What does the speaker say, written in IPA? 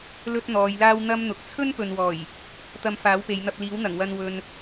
l ɵ˥ t̚ n̪ ɔː˨˧ j l aː˥ w n̪ ɐ˥ m n̪ ʊ˨˥ k̚ t͡sʰ ɵ˥ n p ɵ˨ n w ɔː˨˩ j | t̪ ɐ˧ m f aː˨˥ w p e˨˧ j n̪ ɐ˧ p̚ l iː˨˥ w n̪ ɐ˨˩ ŋ w ɐ˧ n w ɵ˧ n

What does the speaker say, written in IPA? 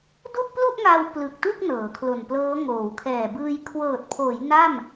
d u˥˩ ʔ p l u˥˩ ʔ ŋ aː˧ w p l ɯ˨˩ k̚ t u˥˩ k̚ n ɤː˩˦ kʰ l o˨˩ n p l ɤː˦˥ ŋ oː˩˦ w kʰ ɛː˨˩ b ɯː˧ j kʰ w ɤː˨˩ t̚ pʰ oː˩˦ j n a˥˩ m

